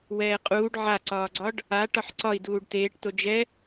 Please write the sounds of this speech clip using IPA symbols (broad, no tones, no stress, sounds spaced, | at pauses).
w ɛː qʼ uː ɖ ʕ a ǀ ɒː ɡ͡ǀ ɒ ɖ | a ʈ ɒ ħ ǀ ɒ i̯ d uː ɖ t eː ʈ t o d͡ʒ ɛ